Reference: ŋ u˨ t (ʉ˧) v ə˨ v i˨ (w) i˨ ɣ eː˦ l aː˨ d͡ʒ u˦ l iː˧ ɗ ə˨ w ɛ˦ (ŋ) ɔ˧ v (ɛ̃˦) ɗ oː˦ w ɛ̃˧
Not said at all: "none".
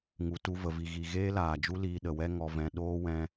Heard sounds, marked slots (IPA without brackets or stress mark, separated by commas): u˧, ɣ, ŋ, ɛ̃˧